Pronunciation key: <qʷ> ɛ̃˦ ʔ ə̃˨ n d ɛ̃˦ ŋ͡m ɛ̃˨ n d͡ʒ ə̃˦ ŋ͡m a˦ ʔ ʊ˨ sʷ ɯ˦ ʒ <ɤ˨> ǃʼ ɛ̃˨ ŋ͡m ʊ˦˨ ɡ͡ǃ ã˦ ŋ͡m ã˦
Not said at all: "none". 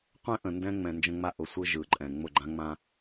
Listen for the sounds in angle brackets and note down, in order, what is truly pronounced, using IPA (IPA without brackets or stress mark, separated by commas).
qʷ, ɯ˨